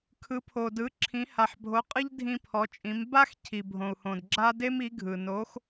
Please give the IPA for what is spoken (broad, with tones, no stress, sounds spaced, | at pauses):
kʰ ɯ˧˥ pʰ o˧ d ɯ˧˥ ǁʰ ĩ˧˥ h a˧ ħ bʱ o˧˥ qʼ ɯ˥ ʎ dʱ ĩ˥ pʰ ɔ˧˥ t͡ʃʼ ĩ˧˥ m b a˥ x cʰ i˧ bʱ õ˧ u̯ h õ˧ d ɡ͡ǁ a˥ d e˥ m i˧˥ ɡʱ ɯ˧ n o˧˥ x